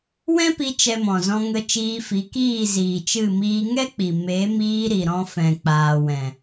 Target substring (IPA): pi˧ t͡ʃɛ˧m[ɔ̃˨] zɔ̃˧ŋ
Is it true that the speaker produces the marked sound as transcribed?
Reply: yes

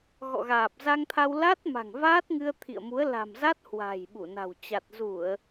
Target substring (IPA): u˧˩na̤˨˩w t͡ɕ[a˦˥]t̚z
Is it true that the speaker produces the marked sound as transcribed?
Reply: no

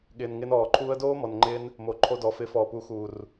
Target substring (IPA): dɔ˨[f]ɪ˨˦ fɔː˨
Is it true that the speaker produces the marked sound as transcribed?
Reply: yes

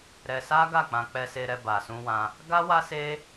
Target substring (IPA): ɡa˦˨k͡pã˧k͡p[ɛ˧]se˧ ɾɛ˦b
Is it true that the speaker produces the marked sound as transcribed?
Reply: yes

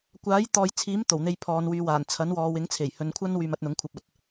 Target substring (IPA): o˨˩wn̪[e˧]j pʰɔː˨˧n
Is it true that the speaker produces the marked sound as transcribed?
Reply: yes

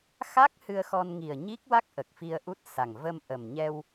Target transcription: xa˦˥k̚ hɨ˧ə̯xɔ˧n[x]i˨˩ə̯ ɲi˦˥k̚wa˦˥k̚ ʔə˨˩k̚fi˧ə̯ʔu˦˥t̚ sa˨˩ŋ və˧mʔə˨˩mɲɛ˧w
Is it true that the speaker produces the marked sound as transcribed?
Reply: no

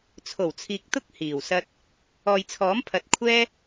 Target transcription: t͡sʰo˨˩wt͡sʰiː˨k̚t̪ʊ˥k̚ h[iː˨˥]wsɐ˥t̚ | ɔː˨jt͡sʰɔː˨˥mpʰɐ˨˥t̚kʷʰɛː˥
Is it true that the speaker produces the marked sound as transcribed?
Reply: no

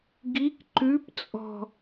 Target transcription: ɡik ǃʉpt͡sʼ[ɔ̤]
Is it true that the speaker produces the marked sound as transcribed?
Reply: yes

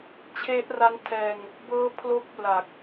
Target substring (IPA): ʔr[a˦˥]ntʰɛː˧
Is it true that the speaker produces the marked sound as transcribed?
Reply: yes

